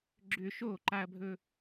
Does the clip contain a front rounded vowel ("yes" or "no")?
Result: yes